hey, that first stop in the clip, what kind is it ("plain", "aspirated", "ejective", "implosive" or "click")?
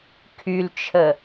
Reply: aspirated